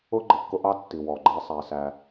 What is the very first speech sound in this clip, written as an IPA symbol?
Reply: ʊ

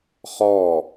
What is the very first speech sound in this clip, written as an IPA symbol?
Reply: χ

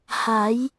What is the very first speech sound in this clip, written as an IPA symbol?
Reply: h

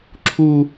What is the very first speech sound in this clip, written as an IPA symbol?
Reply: ǁʰ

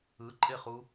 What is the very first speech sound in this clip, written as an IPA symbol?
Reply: ɯ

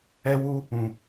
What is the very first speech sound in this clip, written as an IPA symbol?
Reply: ɛ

